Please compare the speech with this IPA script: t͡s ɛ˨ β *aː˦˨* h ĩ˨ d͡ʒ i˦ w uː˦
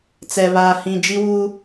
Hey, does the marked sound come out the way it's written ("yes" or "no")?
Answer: no